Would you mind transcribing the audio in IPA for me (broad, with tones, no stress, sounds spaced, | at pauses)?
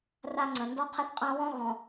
r a˦ ŋ͡ǀ ə̃˨ n d ɔ˦ qʰ ə˦ θ qʼ ã˦ w ɔ̃˦ ɣ ɔ̃˨